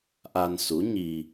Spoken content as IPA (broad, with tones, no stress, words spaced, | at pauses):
ʔa˧nsu˧˥ɲi˧